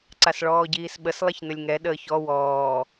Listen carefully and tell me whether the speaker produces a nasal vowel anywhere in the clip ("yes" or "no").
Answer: no